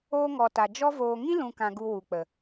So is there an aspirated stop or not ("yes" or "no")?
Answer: no